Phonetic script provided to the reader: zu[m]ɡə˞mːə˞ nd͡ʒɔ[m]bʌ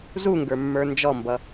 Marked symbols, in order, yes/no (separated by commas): no, yes